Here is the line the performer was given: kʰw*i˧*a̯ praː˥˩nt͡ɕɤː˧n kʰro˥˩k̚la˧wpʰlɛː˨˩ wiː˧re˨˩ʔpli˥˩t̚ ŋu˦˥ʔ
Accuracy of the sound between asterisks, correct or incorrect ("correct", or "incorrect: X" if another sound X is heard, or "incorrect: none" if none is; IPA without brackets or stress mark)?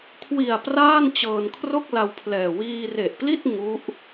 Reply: incorrect: i˨˩